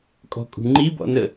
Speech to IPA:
kʼ ɔ̤ kʼ ṳ ŋ͡ǃ i b ɔ̰ n ə

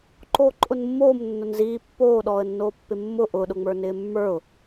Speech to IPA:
ǃ oː ǃʼ ʊ n mː oː m nː ʊ n z iː pː oː ɗ ɔː ə̯ nː oː pː ɪ mː ʊ ʔ ʊː ɗ ʊ ŋ͡m ə˞ n ɪː mː ə˞ ʊ̯

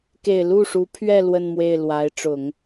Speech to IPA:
k e˨˩ ɪ̯ l u˥˩ ʂ u˧˥ pʰ ɥ ɛ˥˧ l w ə˥˧ n m w e˥˩ ɪ̯ l w a˧˥ ɪ̯ ʈ͡ʂ ʊ˨˩˦ ŋ

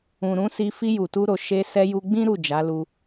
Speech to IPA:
ũ˨ ɾ ũ˨˦ s i˧ f i˧ j u˨ t u˧ ɾ o˨ ʃ e˧ s ɛ˧ j u˧ ɡ͡b ĩ˦ ɾ u˦˨ d͡ʒ a˨˦ l u˧

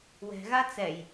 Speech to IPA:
w ɛ̤ ɣ a t͡s ɛ j

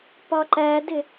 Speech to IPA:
p ɒ ǃ æ d ɪ

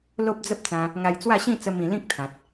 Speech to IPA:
l o˦ p̚ d͡z ə˦ p̚ t͡s ã˧ | ŋ a˧ j t͡s w a˥˧ ɕ ĩ˥˧ t͡s ə˦ m ĩ˧ l ĩ˦ k̚ t̪ʰ ã˨ t̚

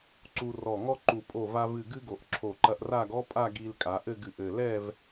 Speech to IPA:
ǀ u˧ r ɔ˧˩ ŋ ɔ˥ ǃ u˧˩ pʼ o˧˩ v a˧ v ɨ˧˩ ɡ ɨ˥ ɡ o˧˩ ʔ ǁʰ o˧˩ ǃ ɐ˧ ʔ r a˥˧ ɡ ɔ˥ pʼ a˥˧ ɡ i˧ l kʼ a˩˧ ʔ ɘ˥˧ ɡ ɨ˧˩ ʔ ɘ˧˩ l ɛ˥˧ v

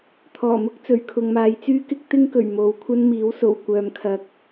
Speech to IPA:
t̪ʰ ɔː˨˩ m ʊ˥ k̚ t͡s ɵ˨˩ ɥ kʰ ʊ˨ ŋ m aː˨˧ j t͡s yː˥ k ɪ˥ k̚ t̪ ɪ˥ ŋ k ɵ˨˩ ɥ m o˨ w kʷʰ ɐ˥ n m iː˨˥ w s o˨˩ w kʷ œː˨ m kʰ ɐ˨˥ k̚

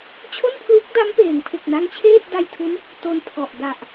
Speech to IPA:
t͡ɕʰ o˥˩ n pʰ l uː˦˥ k̚ d a˦˥ m p eː˩˦ ŋ pʰ e˨˩ k̚ n a˦˥ ŋ t͡ɕʰ eː˥˩ t̚ d a˧ j tʰ u˦˥ n | t o˧ n pʰ ɔ˨˩ ʔ d a˨˩ ʔ

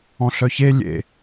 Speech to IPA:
ɔ̃ ɬ œ ç e lʲ ḛ

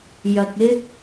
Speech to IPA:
j ɐ˨ k̚ ɪ˥ k̚

